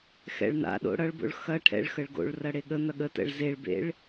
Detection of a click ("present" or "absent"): absent